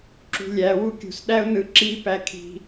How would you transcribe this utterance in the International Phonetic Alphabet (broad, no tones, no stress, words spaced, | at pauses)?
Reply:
ǁṳlʲæwu kʲṳsɗæʊ̯ nɯǁipæ kʰi̤